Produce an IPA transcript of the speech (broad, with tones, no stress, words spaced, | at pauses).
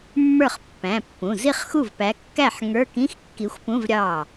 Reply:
mːə˞˥˩χpːæ̃˩˧˩pːũ˩˧˩ zi˥˩χxu˥˩vpæ˨˦ kːæ˥˩ħ ŋə˞˧˥˧kĩ˧˥˧xkːi˨˦xʷpũ˧˥˧v ɾʲɑ˥˩